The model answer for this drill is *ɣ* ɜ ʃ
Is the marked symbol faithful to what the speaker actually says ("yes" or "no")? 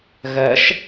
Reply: yes